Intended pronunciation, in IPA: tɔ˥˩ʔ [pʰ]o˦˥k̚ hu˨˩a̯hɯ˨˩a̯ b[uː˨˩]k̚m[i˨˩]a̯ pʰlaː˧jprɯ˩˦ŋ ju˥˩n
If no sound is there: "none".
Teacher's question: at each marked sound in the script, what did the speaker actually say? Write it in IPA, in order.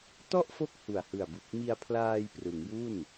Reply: f, u˨˩, i˧

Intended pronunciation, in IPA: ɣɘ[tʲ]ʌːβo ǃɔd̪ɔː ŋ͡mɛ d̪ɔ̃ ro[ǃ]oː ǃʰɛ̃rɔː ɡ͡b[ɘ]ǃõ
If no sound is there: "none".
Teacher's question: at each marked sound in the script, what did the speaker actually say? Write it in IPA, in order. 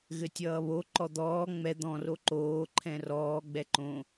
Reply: tʲ, ǃ, ɛ

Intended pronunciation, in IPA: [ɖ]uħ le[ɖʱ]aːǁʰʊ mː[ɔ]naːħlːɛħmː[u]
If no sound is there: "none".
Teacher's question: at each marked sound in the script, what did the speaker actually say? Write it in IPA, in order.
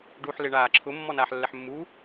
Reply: ɖ, ɳ, ɔ, u

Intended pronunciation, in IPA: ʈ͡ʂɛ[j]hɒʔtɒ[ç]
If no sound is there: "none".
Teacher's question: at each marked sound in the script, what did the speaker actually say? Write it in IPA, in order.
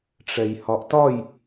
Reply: j, j

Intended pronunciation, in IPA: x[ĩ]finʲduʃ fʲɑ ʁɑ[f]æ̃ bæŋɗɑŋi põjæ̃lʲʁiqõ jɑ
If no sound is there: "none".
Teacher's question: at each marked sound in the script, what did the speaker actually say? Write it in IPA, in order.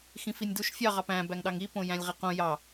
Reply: ĩ, p

